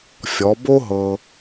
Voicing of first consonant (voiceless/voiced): voiceless